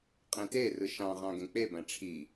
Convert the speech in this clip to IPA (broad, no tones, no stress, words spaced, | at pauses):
qʼẽterɯ ʃɑ̃ʁɑ̃ ɡẽk͡pebæ̃ ʈ͡ʂʰi